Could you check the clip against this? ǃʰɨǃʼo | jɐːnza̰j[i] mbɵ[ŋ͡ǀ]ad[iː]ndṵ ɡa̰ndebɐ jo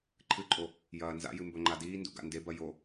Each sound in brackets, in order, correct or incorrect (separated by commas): incorrect, incorrect, correct